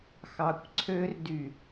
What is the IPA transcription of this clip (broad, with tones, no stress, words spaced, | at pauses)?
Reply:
xɑ˨kʷǀʰø˦r dy˨